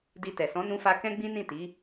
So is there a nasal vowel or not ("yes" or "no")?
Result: yes